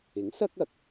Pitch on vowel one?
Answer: rising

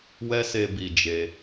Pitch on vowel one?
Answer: high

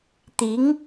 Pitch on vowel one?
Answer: rising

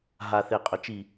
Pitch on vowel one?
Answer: low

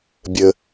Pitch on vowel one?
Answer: low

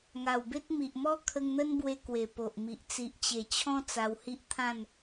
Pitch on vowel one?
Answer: low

